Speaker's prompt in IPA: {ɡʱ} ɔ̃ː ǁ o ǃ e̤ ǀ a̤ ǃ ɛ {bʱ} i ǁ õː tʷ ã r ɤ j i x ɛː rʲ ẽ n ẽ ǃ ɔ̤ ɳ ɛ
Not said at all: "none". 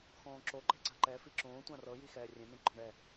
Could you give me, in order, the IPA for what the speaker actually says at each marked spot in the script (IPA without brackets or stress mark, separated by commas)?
x, f